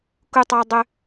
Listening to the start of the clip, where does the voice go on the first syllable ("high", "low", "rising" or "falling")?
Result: high